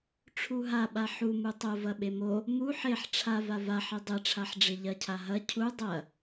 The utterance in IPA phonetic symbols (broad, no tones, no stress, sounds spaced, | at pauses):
ʈ͡ʂʰ u ɦ a ɓ a ħ u m u tˤ o v ɐ ɓ e m o | m u ħ e ħ ʈ͡ʂʰ a v a v a ħ e dˤ e ʈ͡ʂʰ a ħ ɖ͡ʐ e ʎ ɐ cʰ a ɦ ɐ cʰ u dˤ ɐ